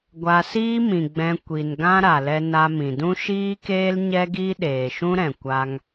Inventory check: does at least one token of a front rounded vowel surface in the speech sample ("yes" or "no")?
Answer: no